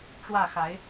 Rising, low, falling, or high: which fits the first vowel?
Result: falling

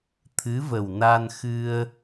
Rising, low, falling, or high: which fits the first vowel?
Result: rising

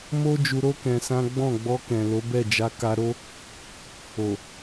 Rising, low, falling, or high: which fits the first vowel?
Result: high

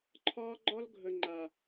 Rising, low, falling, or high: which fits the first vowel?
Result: high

